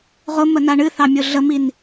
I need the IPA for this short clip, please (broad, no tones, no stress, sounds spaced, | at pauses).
ʁ ʊ m ə n a ɳ ɨ θ ɑ mʲ ʊ ɮ ə m i n